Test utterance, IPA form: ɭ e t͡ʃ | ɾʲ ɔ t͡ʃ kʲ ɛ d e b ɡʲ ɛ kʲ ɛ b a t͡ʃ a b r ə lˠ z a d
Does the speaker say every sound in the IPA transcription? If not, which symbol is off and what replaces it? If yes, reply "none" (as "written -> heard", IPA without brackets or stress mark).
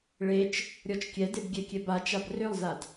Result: ə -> ø